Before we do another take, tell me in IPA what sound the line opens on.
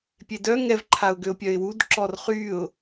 pʲ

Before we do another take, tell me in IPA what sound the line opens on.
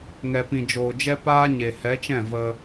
ŋ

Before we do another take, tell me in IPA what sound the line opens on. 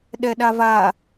ɗ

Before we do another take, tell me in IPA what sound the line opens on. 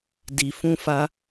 d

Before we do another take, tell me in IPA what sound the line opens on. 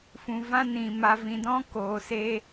f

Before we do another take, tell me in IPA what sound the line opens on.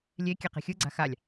lʲ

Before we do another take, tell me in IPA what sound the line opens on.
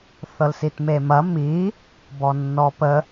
θ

